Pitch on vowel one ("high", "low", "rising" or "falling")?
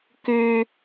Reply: low